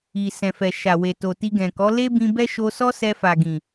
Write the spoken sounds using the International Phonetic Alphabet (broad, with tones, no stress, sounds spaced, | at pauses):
i˨ s ɛ̃˨ f ɛ˨ ʃ a˨ w e˨ t o˨ t i˧ ɡ ɛ̃˨ k ɔ˨˦ l e˦ b ĩ˧ b ɛ˦ ʃ o˧ s ɔ˦ s ɛ˧ f a˨ ɡ ĩ˨